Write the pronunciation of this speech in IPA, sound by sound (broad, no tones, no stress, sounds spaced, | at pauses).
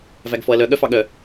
v æ ɡ f ɔ ɐ̯ l œ ɠ œ f ɑ ɠ œ